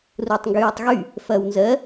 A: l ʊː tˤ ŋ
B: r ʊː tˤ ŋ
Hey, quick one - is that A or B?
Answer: B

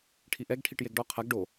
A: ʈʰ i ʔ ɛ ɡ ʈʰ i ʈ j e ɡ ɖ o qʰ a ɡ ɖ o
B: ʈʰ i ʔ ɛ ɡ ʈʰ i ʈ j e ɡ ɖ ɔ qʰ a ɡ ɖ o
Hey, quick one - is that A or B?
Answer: B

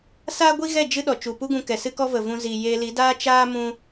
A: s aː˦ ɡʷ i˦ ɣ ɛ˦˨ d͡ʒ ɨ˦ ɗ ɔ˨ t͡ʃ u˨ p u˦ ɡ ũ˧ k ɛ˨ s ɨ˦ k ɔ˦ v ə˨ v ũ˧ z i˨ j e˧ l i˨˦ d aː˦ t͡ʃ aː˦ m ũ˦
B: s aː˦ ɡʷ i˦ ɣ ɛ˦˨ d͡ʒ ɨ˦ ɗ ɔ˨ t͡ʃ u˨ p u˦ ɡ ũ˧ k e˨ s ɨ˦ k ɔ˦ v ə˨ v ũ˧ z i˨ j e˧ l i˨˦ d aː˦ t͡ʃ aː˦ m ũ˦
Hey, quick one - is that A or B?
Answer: A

